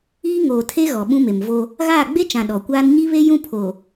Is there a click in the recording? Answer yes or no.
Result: no